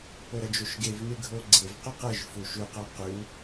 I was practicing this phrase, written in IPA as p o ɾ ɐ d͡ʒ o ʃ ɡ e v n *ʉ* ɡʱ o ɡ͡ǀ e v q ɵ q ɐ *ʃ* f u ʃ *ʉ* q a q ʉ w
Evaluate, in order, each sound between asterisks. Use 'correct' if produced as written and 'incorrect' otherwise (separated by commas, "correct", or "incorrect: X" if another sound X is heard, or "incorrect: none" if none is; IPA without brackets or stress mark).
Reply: incorrect: ɨ, incorrect: ʒ, correct